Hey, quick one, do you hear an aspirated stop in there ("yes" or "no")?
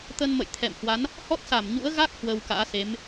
yes